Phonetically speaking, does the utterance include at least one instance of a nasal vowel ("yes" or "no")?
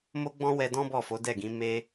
yes